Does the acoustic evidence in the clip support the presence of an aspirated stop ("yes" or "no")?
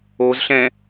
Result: no